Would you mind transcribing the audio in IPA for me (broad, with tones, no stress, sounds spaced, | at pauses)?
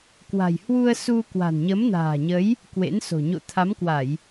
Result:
k w a̤˨˩ j h w u˧ ə̯ s u˧ k w a̤˨˩ n ɲ ə˨˦ m n a̤ː˨˩ ɲ ə˨˦ j | k w ḛ˧˥ n s o̤˨˩ ɲ o̰˧˨ t̪ʰ a˨˦ m k w a˧˩˨ j